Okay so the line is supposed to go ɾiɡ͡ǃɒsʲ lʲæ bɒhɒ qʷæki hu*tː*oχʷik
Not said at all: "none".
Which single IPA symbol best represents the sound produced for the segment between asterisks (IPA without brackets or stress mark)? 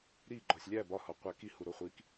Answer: ɾ